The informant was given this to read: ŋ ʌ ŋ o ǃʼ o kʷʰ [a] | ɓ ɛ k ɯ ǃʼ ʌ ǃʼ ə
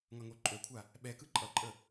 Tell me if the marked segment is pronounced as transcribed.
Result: yes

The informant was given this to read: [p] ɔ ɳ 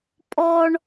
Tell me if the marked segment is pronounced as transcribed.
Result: no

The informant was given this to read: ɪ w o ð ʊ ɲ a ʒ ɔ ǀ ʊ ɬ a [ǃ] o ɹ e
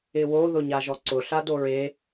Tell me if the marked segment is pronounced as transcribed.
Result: no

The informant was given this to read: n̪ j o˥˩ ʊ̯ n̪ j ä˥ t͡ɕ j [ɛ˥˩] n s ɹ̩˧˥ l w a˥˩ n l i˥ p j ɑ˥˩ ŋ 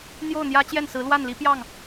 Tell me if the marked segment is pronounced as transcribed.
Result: yes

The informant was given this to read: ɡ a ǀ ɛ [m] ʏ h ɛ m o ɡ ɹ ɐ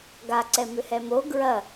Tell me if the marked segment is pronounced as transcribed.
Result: yes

